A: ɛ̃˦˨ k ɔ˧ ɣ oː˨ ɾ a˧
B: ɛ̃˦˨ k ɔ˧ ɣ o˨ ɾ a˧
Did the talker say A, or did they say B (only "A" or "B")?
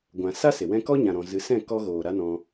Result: A